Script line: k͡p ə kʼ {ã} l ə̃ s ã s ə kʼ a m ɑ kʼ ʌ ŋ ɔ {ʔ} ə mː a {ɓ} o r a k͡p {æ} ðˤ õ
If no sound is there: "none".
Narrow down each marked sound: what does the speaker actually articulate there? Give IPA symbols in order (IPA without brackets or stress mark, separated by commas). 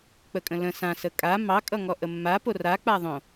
ə̃, ʔ, p, a